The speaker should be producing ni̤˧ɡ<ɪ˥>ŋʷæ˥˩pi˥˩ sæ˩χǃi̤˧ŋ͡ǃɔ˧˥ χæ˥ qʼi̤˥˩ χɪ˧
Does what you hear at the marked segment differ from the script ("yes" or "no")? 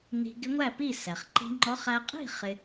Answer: yes